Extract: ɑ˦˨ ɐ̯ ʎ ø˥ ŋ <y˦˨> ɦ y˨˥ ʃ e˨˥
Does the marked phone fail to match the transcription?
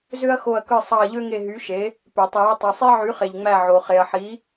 yes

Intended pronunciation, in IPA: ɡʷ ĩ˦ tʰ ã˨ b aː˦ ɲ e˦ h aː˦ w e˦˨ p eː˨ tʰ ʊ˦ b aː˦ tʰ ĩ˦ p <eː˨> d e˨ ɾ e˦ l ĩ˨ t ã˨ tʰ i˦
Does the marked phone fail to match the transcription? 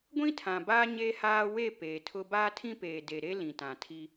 no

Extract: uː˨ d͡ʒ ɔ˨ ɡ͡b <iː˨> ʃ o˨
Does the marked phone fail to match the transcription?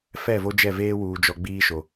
yes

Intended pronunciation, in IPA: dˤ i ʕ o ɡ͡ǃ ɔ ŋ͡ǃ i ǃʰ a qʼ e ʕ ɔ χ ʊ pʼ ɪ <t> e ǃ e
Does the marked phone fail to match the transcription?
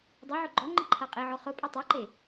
yes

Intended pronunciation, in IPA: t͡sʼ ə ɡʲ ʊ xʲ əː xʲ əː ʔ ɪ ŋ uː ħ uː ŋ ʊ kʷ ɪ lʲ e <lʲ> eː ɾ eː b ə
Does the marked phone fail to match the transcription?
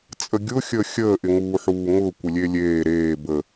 no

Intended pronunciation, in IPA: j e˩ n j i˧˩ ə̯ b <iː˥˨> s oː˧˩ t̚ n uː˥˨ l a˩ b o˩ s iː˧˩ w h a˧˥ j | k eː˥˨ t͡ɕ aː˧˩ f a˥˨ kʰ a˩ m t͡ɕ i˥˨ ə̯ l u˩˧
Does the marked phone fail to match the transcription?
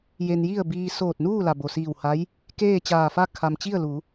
yes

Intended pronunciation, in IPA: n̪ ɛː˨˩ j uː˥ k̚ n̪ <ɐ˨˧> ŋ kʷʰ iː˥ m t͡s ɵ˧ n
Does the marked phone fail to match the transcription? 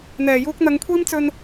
no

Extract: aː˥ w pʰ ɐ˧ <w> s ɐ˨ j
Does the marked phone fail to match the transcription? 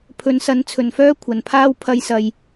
yes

